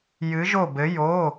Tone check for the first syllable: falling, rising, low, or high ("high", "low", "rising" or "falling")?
rising